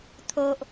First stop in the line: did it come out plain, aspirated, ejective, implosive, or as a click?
aspirated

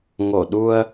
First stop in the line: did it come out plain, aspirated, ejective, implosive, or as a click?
implosive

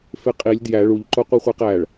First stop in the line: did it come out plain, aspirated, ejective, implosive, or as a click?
ejective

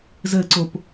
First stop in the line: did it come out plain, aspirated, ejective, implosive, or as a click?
click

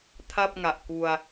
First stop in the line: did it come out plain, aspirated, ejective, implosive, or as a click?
aspirated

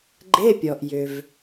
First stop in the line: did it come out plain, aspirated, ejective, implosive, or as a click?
click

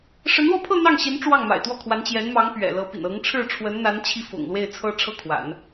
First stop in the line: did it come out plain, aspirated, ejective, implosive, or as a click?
aspirated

